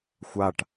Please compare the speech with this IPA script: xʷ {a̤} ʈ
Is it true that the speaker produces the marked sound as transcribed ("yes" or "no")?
no